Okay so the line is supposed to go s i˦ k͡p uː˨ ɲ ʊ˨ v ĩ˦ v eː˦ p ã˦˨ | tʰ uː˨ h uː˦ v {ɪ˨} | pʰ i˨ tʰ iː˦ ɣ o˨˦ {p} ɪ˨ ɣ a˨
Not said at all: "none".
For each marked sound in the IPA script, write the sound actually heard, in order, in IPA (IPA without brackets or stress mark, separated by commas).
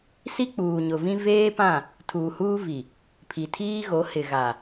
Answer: i˨, h